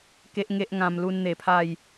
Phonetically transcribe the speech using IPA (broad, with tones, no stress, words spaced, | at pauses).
ke˦ʔŋe˦ʔŋã˧m lu˧nn̪e˨˩ pʰa˥˧j